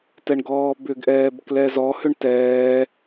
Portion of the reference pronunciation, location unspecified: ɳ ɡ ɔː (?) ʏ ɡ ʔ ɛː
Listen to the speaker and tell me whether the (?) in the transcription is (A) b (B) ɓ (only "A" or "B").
A